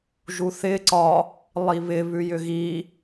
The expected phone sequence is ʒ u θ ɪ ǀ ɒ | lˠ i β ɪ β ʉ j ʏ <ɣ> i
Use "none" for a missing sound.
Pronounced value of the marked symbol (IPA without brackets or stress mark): ɣ